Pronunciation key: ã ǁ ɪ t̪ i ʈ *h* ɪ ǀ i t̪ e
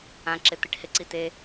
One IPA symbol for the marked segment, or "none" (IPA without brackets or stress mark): h